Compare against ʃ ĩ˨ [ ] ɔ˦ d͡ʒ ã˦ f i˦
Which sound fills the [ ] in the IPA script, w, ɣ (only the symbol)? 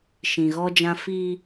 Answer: ɣ